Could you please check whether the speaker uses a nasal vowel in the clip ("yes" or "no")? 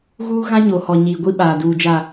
yes